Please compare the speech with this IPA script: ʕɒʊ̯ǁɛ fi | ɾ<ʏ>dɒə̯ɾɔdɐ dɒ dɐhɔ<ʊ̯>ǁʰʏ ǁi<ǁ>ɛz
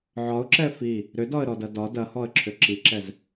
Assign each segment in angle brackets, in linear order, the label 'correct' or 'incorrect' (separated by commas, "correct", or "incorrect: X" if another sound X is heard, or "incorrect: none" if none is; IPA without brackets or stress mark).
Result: correct, incorrect: ə̯, correct